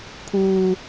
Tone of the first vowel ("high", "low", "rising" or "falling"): low